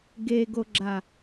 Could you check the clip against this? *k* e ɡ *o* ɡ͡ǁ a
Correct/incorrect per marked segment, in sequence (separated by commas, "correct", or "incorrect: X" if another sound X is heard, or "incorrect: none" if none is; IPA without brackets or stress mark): incorrect: ɡ, correct